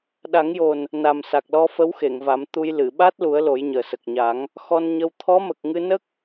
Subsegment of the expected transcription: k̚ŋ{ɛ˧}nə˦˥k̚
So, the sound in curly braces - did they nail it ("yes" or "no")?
no